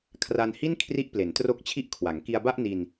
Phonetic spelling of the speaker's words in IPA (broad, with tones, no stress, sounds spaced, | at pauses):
kʰ r a˧ n h i˥˩ n kʰ r i˦˥ ʔ p l e˩˦ n t r o˥˩ k̚ t͡ɕʰ i˥˩ ʔ kʰ w a˩˦ ŋ k i˧ a̯ b a˥˩ ʔ n i˧ n